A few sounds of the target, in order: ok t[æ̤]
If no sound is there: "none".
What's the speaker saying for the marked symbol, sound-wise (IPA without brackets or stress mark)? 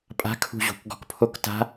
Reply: a̤